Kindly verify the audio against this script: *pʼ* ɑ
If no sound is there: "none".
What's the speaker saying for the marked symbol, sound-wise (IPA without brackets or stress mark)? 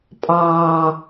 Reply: pʼ